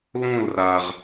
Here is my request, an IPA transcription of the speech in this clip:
l õ˥˧ l r a˧ ʁ

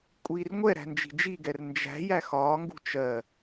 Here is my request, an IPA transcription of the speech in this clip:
kʷʼ iː r ŋʷ ɛ ɾ æ̤ n d͡ʒ i̤ d͡ʒ i ɡ ɛ r n d͡ʒ æ̤ j æ x ɒː ŋ ɡ ṳ t͡ʃ ɜ

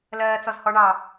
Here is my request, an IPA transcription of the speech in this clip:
l ɜː t͡s ɔ z h ɔ ɳ ɑ

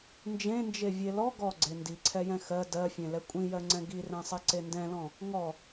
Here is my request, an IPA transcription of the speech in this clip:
n d͡ʒ ẽ n d͡ʒ e vʲ e l ɔ ɡ ɔ ɡ͡ǀ e n d i ǀʰ ɛ j ɛ̃ x ɜ d ɜ fʲ ẽ l ɛ kʷʼ ĩ j ɜ ŋ͡ǀ ɛ̃ ɡ i r ɛ̃ sˤ e ǀ e n d ɛ̃ l ɔ̃ | ŋ ɔ

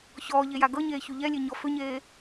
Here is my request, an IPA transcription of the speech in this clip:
ç ɔː ʎ e j a ɡ ɤ ɲ eː ç u ʎ ɛ lʲ e ɲ ɔ f ʏ ɲ eː

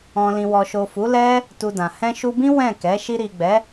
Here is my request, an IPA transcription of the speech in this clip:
ɔ̃˨ l ĩ˨ w ɔ˨ ʃ o˨ f u˨˦ l ɛ˦ | t u˧ d ã˨ h ɛ̃˧ ʃ u˧ b ĩ˦ w ɛ̃˦˨ k ɛ˨˦ ʃ i˧ ɾ i˨ ɡ͡b ɛ˨˦

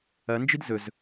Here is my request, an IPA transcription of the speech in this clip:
ɐ n d͡ʒ i d z ɵ z

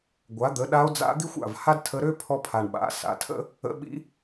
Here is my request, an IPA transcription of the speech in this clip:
ɡʷ a˩˥ d̪ ə˩˥ ɗ a˧˥ o̯ d͡z a̰˧˥ d̪ i˥ xʷ a̰˧˩ v h a˥ d tʰ ə˧˥ ɾ ø˥ pʰ ɔ˥ pʰ a˧˩ ɳ ɓ a̰˩˥ s a̰˩˥ tʰ ə̰˥ | ə̰˧˥ ɓ ḭ˧˥

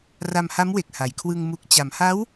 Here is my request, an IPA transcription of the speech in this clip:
r a˧ m h a˦˥ m w e˨˩ k̚ h a˩˦ j kʰ w ɯ˧ ŋ m u˨˩ k̚ t͡ɕ a˩˦ m h a˦˥ w

